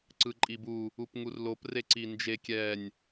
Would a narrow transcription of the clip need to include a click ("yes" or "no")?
yes